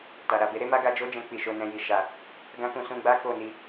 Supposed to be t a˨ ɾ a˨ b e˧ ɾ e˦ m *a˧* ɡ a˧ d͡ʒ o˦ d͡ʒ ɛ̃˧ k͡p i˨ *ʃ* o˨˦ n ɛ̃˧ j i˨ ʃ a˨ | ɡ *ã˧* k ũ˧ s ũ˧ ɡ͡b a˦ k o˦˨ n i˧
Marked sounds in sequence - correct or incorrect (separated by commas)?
incorrect, correct, incorrect